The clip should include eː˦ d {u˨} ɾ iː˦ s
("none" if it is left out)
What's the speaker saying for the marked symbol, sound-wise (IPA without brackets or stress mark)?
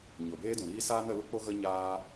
ũ˨